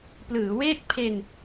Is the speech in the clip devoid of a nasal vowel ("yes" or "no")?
yes